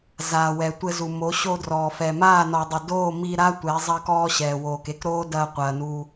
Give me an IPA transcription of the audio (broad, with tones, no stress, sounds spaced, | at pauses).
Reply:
z aː˨ w ɛ˨ tʷ ɘ˧ z u˨ m o˨˦ ɕ o˧ d r ɔː˨ f ɛ˨ m aː˦˨ n ɔː˨ dˤ ɘ˨ d oː˦˨ m i˧ ɾ a˦ tʷ ɛ˨˦ zˤ ɐ˧ k ɔː˧ ɕ ɛː˨ w oː˨ k e˦ k ɾ oː˦ d ɐː˧ qʷ ɐː˨ n u˧